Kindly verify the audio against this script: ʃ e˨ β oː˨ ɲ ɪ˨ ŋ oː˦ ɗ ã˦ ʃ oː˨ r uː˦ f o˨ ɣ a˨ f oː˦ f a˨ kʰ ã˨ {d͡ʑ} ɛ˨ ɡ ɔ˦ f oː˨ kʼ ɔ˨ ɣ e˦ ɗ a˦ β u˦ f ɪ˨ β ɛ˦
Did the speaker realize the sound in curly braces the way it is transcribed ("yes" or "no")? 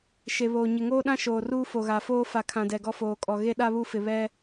no